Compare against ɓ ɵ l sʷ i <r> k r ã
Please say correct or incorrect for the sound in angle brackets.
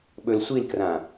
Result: incorrect